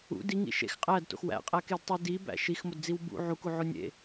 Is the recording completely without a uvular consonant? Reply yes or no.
no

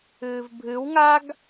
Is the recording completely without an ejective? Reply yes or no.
yes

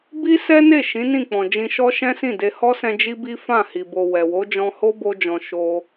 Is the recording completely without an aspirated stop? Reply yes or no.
yes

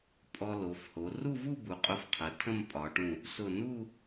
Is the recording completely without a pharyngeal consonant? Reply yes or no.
yes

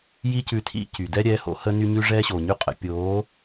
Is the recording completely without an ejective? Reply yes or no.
no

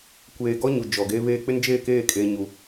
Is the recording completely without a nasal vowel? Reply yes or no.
yes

